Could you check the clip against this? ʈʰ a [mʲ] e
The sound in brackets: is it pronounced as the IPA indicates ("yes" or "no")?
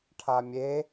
yes